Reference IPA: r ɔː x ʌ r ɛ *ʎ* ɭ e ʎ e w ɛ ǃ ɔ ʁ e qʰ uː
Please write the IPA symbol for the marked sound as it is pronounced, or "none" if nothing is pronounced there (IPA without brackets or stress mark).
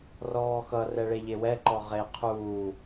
none